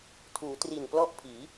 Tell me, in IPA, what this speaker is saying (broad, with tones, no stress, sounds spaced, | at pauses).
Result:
tʰ uː˩˦ t r i˨˩ n p l ɔ˥˩ ʔ pʰ iː˩˦